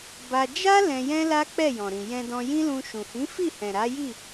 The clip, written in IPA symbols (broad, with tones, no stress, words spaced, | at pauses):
ba˧ d͡ʒa˦ lɛ̃˧jɛ̃˦la˦ k͡pɛ˦˨jɔ̃˨ɾĩ˨ jɛ̃˧dɔ̃˧jĩ˦lũ˧ ʃũ˨hĩ˨˦fi˦˨hɛ̃˨ ɾa˨˦ ji˦˨